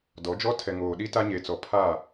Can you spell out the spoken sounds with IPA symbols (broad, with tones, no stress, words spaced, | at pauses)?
dɔ˨˦d͡ʒɔ˦ tʰɛ˨ŋoː˨ɗi˦ ta˦ɲe˨t͡sɔ˨ pʰa˦˨